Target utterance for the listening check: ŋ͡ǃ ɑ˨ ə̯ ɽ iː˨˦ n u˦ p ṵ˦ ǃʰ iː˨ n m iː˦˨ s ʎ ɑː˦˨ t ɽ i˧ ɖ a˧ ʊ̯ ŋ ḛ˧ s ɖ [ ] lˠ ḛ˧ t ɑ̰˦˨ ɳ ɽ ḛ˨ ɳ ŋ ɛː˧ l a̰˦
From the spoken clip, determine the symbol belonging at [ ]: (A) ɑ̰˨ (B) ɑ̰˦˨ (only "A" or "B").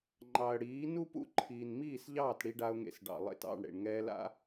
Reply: A